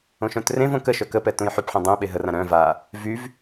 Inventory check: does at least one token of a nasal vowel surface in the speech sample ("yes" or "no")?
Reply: yes